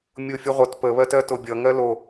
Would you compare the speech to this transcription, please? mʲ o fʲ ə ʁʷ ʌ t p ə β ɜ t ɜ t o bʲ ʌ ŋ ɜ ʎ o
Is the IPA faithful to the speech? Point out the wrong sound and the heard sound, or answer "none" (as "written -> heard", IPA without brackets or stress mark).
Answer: ʎ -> l